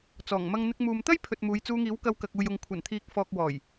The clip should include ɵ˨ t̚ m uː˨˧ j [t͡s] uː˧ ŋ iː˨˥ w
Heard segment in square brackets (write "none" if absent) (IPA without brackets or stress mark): t͡s